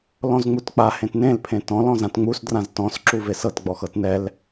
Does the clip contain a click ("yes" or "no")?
yes